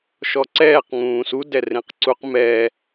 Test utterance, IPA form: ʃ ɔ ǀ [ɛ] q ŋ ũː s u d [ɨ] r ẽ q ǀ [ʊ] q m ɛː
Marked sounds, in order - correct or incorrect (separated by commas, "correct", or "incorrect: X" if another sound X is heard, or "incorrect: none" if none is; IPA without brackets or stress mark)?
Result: incorrect: ɛː, incorrect: ɛ, incorrect: u